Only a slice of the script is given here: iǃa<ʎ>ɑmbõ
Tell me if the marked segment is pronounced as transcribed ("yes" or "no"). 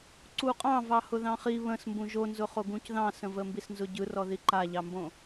yes